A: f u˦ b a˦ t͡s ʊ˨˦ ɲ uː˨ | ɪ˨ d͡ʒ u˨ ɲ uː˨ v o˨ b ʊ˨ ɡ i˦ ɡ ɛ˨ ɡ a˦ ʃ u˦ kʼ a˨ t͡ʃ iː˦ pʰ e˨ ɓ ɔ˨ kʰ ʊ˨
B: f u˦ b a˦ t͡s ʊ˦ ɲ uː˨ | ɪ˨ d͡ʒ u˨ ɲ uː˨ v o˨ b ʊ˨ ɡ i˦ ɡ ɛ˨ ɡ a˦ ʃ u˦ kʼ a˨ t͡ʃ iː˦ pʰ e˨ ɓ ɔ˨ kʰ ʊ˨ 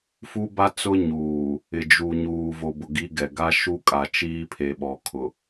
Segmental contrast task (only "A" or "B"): B